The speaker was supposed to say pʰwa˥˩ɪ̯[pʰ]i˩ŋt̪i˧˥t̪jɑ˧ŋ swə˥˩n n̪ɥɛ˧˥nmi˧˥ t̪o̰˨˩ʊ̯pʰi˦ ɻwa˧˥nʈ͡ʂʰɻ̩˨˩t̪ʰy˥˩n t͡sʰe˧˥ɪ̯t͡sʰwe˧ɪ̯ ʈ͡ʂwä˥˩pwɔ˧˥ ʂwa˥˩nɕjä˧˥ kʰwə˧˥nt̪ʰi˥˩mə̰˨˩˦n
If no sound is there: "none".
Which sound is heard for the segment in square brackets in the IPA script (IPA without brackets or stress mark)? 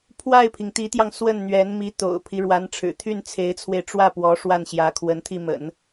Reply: pʰ